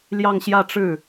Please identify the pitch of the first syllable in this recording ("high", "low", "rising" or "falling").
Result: falling